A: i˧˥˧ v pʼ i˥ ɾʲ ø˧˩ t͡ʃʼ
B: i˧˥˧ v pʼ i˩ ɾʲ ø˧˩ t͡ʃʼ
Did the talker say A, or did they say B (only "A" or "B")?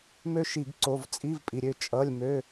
B